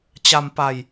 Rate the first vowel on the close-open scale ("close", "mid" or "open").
open